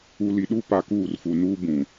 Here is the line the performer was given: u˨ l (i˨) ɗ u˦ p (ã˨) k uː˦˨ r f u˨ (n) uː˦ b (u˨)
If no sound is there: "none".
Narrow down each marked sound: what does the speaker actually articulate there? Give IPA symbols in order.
i˨, a˨, n, ũ˨

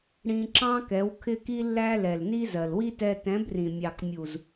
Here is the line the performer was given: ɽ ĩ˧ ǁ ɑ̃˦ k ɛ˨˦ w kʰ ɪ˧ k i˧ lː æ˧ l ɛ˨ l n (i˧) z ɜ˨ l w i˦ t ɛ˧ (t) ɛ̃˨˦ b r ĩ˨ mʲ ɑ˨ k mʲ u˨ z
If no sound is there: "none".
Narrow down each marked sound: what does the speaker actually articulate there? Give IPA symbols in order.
i˧, t

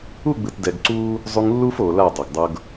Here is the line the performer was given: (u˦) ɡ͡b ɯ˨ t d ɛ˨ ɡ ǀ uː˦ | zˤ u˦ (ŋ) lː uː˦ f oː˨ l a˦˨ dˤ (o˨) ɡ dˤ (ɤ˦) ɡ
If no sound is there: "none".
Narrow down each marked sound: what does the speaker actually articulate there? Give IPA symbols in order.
u˦˨, ŋ, o˨, ɤ˦

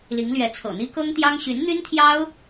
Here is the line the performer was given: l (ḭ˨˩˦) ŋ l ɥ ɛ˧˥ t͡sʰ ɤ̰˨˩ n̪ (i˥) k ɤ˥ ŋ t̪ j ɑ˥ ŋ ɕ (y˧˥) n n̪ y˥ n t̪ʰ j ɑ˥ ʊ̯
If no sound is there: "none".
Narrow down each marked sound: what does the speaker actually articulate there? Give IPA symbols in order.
i˧˥, i˥, y˧˥

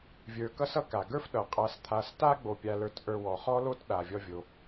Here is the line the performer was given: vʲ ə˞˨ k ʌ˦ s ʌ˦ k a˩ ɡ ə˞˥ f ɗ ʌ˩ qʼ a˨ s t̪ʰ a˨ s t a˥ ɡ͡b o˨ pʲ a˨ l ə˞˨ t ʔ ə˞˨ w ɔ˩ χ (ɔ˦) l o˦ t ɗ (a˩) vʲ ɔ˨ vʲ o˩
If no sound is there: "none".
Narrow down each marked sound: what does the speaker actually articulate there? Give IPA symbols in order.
ɔ˦, a˩

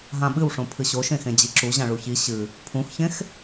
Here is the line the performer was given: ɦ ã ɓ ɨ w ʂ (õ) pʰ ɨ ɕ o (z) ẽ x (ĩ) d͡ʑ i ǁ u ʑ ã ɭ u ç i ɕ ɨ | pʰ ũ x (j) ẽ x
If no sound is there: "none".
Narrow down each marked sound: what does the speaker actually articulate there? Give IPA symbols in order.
õ, ʃ, ẽ, ç

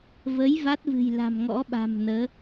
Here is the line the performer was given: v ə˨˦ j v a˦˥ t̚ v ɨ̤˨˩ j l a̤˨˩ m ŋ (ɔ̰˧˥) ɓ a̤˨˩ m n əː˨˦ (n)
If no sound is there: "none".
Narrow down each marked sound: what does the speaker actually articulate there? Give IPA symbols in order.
ɔ̰˧˥, none

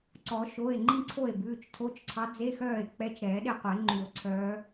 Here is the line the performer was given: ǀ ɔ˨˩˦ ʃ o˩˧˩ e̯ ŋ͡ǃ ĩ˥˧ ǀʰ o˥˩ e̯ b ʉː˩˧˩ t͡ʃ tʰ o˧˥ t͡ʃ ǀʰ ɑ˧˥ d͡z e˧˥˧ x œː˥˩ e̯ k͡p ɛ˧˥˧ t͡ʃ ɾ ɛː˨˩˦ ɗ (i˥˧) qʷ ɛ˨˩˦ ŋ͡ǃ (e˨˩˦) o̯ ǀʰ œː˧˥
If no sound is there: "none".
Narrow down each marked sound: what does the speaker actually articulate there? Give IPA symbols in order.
e˥˧, y˨˩˦

